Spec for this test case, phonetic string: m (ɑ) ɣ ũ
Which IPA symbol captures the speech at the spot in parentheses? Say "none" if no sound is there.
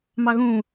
ɑ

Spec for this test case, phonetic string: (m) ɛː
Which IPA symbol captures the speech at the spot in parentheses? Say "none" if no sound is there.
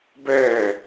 b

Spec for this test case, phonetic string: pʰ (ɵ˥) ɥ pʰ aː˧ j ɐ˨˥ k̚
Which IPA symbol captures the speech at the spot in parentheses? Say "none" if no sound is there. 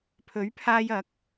ɵ˨˥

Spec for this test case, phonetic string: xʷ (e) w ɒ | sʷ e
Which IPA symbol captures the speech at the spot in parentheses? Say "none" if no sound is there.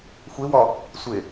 e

